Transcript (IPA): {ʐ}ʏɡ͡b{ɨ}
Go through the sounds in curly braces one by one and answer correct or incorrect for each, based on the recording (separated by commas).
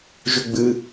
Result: incorrect, correct